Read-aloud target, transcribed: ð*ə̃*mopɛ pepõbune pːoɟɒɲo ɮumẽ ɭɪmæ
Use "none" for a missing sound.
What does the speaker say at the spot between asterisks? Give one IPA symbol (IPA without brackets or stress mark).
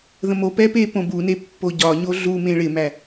ə̃